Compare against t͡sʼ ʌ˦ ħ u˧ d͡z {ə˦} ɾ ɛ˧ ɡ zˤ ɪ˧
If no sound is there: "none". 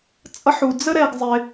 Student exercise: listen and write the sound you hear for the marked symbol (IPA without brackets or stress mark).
ə˦